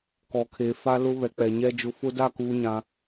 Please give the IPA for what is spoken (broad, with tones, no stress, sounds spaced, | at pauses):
k ɔ˨ kʰ e˨ f a˦ l ʊ˦ β ɛ˨ k͡p ɛ˨ ɲ ɛ˦ d͡ʒ ʊ˨ f ʊ˦ d a˦˨ k uː˨ ɲ ã˨